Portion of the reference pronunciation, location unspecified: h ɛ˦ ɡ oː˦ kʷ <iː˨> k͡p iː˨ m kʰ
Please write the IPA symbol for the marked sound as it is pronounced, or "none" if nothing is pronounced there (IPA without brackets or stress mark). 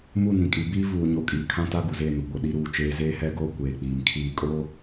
eː˨